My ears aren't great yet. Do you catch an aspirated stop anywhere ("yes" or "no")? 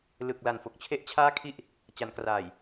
yes